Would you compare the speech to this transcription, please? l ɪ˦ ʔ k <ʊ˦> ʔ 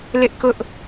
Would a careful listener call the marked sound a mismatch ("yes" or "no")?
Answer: no